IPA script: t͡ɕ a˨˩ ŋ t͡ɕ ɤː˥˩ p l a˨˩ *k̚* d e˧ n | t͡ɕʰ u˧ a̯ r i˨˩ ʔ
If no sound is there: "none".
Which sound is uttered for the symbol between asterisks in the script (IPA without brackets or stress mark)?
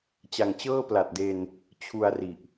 t̚